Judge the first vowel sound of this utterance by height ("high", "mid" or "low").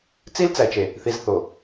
high